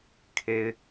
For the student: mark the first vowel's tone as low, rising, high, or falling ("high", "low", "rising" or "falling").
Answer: high